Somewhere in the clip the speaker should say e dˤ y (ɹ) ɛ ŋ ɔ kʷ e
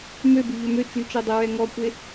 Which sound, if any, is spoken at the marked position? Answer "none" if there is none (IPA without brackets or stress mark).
ɹ